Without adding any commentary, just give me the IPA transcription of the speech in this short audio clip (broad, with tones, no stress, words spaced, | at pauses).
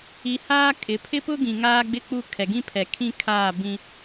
i˨ haː˦ kʼɪ˨ pʰɪ˦pʊ˦ɡĩ˨ ŋaː˦ɡ͡bɪ˦k͡pu˦˨ kʰɛ˨ɡĩ˦pʰɛ˨ kʰĩ˦kʰaː˦˨bĩ˦